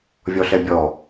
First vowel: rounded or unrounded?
rounded